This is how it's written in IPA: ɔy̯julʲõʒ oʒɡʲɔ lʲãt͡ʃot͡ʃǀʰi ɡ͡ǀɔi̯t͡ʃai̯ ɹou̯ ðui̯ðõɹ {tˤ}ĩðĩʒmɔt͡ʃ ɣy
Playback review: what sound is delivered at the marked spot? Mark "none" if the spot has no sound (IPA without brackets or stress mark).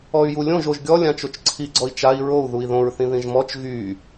θ